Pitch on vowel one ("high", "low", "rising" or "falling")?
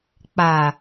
low